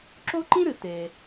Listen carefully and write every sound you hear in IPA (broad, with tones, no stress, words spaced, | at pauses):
ǁo˥ǃĩ˥ɾɨ˩ te˩